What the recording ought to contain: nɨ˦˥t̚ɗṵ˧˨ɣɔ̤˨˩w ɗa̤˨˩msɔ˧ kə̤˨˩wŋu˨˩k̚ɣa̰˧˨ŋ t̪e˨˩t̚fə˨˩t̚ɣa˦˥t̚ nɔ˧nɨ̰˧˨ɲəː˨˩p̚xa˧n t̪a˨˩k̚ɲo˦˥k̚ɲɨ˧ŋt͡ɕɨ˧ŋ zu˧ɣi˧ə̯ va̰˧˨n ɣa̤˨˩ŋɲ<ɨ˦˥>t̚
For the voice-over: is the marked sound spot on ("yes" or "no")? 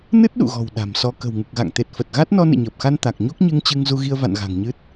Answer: yes